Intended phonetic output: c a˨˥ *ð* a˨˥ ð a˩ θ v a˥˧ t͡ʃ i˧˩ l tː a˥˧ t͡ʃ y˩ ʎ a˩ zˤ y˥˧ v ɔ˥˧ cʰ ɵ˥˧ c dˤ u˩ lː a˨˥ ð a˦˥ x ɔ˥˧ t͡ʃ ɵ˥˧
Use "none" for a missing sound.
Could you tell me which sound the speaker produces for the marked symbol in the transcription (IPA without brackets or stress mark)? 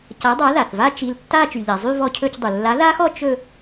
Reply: dˤ